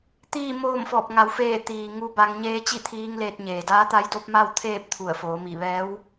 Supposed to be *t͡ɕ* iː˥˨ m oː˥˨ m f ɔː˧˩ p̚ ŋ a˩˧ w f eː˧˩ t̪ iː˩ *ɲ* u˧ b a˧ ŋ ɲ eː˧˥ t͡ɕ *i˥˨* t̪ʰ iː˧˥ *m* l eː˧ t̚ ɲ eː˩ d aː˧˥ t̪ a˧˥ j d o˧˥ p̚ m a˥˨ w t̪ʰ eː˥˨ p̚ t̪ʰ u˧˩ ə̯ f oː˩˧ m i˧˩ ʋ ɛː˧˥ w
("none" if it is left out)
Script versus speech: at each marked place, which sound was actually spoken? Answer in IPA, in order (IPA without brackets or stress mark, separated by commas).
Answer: t̪, ŋ, i˥˨, ŋ